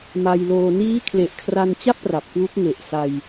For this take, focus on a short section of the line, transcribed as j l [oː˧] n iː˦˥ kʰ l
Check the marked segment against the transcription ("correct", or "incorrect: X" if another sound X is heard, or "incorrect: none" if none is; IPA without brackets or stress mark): correct